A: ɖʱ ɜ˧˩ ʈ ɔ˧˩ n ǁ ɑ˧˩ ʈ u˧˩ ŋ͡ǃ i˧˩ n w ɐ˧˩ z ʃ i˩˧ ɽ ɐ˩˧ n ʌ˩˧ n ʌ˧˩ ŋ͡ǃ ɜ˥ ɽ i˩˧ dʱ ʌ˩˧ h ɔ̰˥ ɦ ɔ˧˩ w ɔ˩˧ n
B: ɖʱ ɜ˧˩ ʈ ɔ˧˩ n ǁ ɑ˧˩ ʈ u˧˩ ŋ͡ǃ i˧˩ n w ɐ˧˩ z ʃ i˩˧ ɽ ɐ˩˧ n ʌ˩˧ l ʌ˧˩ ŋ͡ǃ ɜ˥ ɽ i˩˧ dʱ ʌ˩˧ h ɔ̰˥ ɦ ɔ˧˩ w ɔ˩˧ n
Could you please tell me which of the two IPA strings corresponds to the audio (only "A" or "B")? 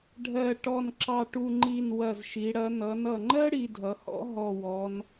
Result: A